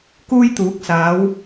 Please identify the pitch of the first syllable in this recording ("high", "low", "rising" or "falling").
high